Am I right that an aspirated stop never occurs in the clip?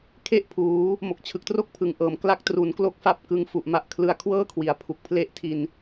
no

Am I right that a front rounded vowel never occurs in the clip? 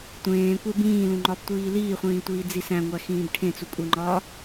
yes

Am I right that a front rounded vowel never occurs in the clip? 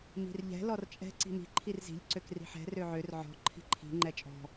no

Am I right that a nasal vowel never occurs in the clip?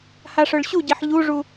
yes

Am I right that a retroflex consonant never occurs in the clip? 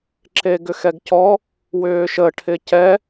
no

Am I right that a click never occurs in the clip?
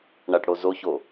yes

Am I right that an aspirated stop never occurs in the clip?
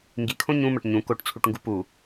no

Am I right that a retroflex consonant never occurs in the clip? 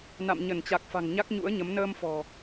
yes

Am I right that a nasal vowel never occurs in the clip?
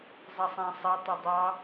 no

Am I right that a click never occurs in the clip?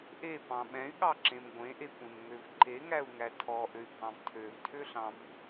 no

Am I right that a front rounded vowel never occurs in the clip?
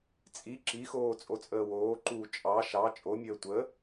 yes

